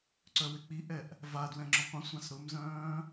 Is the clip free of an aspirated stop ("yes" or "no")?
yes